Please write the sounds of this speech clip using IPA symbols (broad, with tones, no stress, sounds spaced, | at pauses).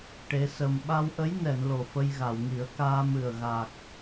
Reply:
ʈ e˧˥ s ə˧ m ɓ a˧ w ʔ ə˧˥ j n ɛ˨˩˨ n l o˨˩ f ə˧ j ɣ a˨˩˨ w ŋ i˨˩˦ ə̯ k aː˧ m ɨ˨˩ ə̯ ɣ a˨˩ k̚